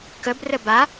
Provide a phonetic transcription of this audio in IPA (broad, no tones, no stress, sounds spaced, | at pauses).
k ə b r ə b a